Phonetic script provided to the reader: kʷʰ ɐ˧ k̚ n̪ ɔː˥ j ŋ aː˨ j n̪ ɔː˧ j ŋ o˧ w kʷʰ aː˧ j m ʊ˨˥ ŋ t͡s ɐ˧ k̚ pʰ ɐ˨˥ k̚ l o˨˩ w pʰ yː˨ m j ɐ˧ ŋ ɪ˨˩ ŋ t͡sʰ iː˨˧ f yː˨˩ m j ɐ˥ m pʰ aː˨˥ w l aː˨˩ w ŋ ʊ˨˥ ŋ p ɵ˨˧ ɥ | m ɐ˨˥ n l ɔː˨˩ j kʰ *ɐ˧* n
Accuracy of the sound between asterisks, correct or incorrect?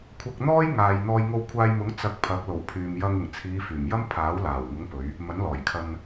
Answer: correct